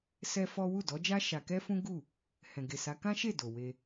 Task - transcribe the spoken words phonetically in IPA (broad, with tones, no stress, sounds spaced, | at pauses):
s ɛ˦ f ɔ˦ w u˦˨ d ɔ˨˦ d͡ʒ a˦ ʃ a˧ k ɛ˦ f ũ˦ ɡ u˦˨ | h ɛ̃˨ ɡ e˨ s a˨˦ k ã˦ ʃ e˦˨ d o˨ w e˧